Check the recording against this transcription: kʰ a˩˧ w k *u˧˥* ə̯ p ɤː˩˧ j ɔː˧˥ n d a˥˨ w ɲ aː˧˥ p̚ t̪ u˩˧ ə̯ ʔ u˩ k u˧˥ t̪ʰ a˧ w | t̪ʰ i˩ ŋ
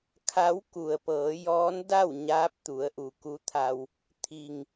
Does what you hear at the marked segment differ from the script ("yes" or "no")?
yes